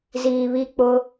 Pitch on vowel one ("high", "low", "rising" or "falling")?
low